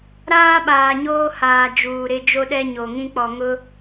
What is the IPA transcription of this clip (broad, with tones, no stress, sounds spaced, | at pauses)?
ɾ aː˦ ɓ aː˨ ɲ oː˦ h aː˨ d͡ʒ uː˨ ɾ ɪ˦ d͡ʒ o˦ ɗ ɛ˦ ɲ o˨ ŋ ĩ˦ k͡p ɔ˨ ŋ ʊ˦